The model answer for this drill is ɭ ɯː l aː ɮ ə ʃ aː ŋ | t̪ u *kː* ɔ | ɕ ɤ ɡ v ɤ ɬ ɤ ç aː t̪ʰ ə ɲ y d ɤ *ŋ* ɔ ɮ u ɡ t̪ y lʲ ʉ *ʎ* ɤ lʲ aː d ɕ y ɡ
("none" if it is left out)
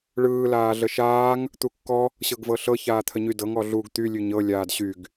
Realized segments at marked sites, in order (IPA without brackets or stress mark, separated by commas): kː, ŋ, ɲ